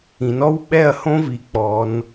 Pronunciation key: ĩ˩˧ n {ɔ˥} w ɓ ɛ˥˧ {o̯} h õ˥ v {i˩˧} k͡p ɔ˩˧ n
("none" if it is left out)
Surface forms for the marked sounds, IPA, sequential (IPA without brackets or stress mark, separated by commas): ɔ˥, ɐ̯, i˩˧